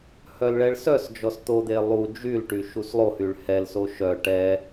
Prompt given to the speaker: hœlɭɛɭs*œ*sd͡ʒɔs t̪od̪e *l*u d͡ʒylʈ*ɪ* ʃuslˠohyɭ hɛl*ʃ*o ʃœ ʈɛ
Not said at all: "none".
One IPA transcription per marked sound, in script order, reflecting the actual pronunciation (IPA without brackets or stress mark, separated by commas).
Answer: œ, lˠ, y, s